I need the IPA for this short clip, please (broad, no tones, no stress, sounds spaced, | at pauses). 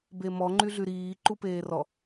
b e m ɔ ŋ͡ǃ y ɮ y ɾ iː ǃ u p eː r ɔ